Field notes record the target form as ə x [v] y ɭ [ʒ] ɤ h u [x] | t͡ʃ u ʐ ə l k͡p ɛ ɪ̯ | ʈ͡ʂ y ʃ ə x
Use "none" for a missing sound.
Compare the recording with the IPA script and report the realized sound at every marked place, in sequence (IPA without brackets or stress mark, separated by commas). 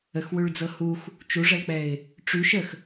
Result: w, d͡z, x